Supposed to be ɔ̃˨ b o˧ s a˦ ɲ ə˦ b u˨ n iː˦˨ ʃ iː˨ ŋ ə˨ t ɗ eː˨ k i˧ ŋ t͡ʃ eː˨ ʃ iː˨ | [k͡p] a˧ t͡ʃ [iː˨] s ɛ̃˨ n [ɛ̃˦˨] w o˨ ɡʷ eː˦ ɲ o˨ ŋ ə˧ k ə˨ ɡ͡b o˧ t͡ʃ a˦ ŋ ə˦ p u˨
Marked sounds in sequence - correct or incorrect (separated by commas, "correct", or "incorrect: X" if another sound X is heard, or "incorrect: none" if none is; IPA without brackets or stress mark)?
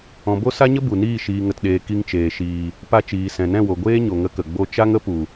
incorrect: p, correct, correct